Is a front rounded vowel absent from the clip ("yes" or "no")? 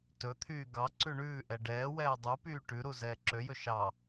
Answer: no